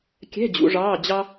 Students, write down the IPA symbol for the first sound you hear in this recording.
kʲ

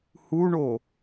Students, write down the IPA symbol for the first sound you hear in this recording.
h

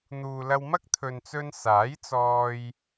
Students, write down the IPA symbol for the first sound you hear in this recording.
n̪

